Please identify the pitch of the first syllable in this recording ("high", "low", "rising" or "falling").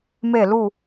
falling